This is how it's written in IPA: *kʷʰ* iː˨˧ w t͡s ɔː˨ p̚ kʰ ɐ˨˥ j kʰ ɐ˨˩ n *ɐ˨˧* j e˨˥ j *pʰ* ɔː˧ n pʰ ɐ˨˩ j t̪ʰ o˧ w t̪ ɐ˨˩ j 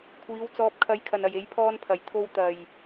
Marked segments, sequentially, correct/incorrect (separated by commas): correct, incorrect, correct